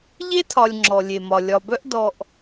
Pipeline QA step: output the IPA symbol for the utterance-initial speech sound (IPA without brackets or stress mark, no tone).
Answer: ʎ